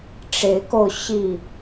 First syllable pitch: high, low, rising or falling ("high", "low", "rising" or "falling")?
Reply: rising